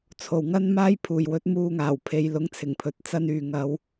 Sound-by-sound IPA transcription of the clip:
t͡sʰo˨wŋɐ˥n maː˥j pʰuː˨jwɵ˨˥t̚ muː˧ŋaː˨˩wpʰe˨˧jlʊ˨˥ŋ t͡sʰɪ˨˩ŋpʰɵ˨t̚ t͡sɐ˧nyː˨ ŋɐ˨˧w

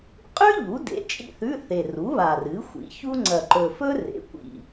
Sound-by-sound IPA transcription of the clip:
qʼʉ˥ ʎu˩˥dḛ˩˥ t͡ʃʼḭ˥θʉ˧˥˧θe˨˩ru˩˥ βa˨˩rɨ˩˥xʷḭ˩˥çu˥ ŋ͡ǀɐ˨˩ǃɵ˨˩fɵ˥ rḛ˩˥kʷḭ˨˩

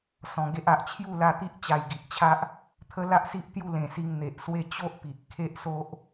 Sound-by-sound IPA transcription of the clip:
sɔ̃˨˩ɡe˦ʔa˨ʔ t͡ɕʰju˥˧la˧t̪i˦ʔ t͡ɕa˧jɡi˨ʔt͡ɕʰa˦ʔ | t̪ʰə˦la˦ʔsi˦ʔt̪ju˥˧ lẽ˨˩si˧ŋ n̪e˨ʔswe˦ t͡ɕo˦ʔpi˨ʔ kʰe˦ʔso˦ʔ

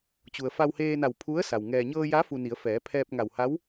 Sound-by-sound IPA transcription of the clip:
t͡ɕu˩ə̯ fa˧w heː˧na˧˩w pʰu˧˥ə̯sa˩w ŋɛː˩ɲɤː˧ja˧˥fu˩ ni˩˧ə̯fɛː˩˧ pʰɛː˧p̚ŋa˧˩w ha˧˥w

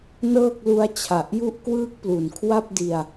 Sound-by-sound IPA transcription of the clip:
nɤː˥˩k̚lu˦˥a̯ t͡ɕʰa˨˩ʔju˥˩ʔkwɯː˥˩k̚plu˨˩n kʰwa˥˩p̚di˧a̯

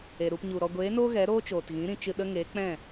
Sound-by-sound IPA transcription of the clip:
e˨ɾu˧pɲu˨ ɾɔ˧ɡʷeː˨˦noː˦ ɣɛ˨˦ɾoː˦ t͡ʃoː˨tɣĩ˨˦ ɾĩ˨t͡ʃɨ˧ ɗə˦ ŋe˨˦k͡pɛ̃˦˨

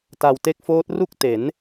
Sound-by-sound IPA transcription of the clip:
ta˧wte˦˥k̚foː˦˥t̚ ru˥˩k̚te˩˦n

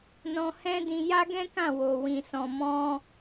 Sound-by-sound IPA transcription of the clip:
nɔ̃˧hɛ̃˦ dĩ˧ja˦ɡɛ̃˦kã˦˨ wo˧wĩ˧sɔ̃˧ mɔ̃˦

